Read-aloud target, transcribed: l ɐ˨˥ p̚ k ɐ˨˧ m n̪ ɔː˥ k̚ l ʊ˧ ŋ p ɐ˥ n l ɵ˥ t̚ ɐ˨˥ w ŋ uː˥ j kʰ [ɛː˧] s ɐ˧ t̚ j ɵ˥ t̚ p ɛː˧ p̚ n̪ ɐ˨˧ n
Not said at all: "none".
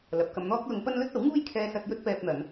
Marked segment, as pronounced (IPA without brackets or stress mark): ɛː˧